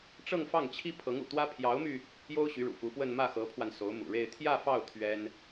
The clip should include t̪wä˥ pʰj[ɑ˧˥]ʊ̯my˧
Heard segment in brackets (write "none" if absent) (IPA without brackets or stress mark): ɑ˧˥